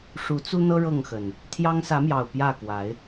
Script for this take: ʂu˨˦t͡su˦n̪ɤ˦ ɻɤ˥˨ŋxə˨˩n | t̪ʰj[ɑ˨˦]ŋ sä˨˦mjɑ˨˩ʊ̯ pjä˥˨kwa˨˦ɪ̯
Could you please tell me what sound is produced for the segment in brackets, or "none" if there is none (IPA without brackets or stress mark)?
ɑ˦